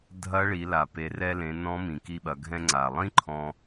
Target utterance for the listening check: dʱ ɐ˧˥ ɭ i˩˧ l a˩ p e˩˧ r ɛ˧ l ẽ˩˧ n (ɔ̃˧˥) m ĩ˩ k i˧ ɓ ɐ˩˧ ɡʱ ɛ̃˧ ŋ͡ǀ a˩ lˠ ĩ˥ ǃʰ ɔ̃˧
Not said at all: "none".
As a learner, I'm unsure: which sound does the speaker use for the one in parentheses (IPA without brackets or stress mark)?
ɔ̃˧˥